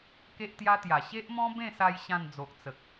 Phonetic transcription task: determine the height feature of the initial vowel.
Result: mid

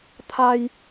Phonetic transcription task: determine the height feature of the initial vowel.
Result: low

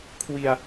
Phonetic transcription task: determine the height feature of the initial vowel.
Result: high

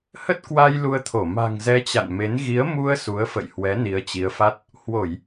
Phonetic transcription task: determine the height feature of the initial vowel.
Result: mid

